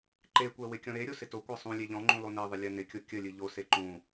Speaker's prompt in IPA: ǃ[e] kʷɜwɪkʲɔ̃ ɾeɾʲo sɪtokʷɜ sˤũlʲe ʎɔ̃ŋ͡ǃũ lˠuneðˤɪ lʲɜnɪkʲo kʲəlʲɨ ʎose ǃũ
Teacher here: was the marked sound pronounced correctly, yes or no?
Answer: yes